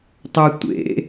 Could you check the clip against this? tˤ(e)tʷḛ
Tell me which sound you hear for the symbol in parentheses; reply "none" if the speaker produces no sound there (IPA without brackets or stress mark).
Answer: ø